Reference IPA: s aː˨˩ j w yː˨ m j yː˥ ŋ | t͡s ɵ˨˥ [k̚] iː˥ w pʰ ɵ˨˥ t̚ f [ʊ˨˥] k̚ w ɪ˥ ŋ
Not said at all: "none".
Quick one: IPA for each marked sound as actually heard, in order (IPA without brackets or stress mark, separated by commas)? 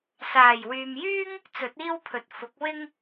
t̚, ʊ˨˥